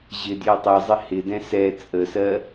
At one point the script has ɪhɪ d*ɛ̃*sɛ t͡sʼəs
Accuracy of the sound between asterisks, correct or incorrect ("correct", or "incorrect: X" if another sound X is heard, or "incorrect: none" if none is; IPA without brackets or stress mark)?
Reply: correct